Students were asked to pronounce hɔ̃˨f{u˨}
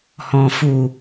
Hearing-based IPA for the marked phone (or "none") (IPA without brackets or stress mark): u˨